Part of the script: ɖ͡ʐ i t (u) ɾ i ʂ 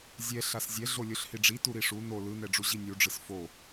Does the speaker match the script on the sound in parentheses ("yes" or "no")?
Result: yes